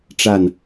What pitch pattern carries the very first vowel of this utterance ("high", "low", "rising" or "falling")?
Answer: falling